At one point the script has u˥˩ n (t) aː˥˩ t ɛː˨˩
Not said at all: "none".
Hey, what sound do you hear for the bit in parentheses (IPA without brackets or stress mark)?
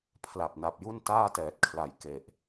t